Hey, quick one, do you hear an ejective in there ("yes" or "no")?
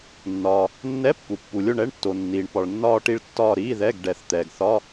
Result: no